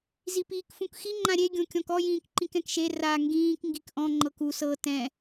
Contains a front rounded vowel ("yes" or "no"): no